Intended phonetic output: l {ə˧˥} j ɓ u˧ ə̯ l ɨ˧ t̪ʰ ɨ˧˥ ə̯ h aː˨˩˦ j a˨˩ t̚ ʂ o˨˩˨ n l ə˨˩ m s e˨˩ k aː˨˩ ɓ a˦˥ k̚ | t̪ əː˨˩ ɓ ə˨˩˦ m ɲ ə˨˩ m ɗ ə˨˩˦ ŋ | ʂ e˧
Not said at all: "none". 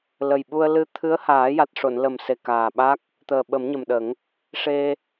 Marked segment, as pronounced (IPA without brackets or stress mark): ə˨˩